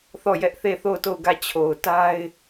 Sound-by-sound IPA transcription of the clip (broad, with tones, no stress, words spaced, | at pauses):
θɔ˦˨jɛ˦ʔθe˦˨ θo˦˨ʊ̯to˦˨ʊ̯ ɡä˦˨t͡ɕʰo˨ʊ̯ ta˦ɪ̯